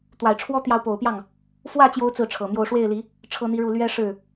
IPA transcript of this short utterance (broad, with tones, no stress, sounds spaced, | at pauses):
t̪ w a˨˩ ɪ̯ ʈ͡ʂʰ w ɔ˥ t̪ j ɑ˧˥ ʊ̯ p o˨˩ ʊ̯ p j ɑ˥˩ ŋ | f w ä˥˩ t͡ɕ j o˧˥ ʊ̯ t͡s ɹ̩˥˩ ʈ͡ʂʰ ɤ˨˩ m j o˥˧ ʊ̯ ʂ w e˥˩ ɪ̯ l i˧˥ | ʈ͡ʂʰ ɤ˥ n̪ i˥ ɻ u˥˩ l ɥ ɛ˥ ʂ ɻ̩˥˩